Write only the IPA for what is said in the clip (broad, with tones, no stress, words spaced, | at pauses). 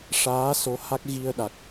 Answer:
ʂaː˧˥ so˧˥ha˦˥k̚ɣi˧ə̯ɗa˨˩k̚